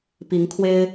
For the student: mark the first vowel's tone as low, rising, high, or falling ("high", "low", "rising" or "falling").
rising